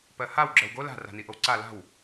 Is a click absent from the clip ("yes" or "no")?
no